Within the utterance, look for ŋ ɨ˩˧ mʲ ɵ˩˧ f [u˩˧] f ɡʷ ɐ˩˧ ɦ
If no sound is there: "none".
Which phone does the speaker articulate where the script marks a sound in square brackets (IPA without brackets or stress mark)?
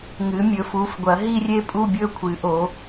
u˩˧